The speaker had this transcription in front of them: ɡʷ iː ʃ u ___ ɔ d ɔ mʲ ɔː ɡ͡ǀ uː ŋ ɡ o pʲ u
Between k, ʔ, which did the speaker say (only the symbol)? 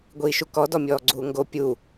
k